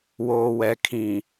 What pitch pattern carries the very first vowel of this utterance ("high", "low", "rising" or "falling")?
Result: low